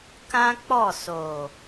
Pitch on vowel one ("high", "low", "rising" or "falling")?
high